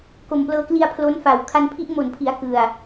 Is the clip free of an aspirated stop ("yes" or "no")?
no